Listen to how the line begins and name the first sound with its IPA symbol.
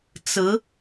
t͡s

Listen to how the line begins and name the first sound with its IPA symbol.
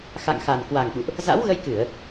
x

